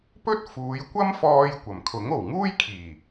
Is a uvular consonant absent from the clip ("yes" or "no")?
yes